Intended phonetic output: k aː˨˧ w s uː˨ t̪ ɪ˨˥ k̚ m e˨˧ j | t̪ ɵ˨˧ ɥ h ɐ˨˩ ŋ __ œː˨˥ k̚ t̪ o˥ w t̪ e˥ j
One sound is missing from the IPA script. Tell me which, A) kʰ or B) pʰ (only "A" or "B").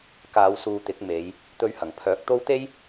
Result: B